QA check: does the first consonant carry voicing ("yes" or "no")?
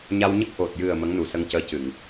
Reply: yes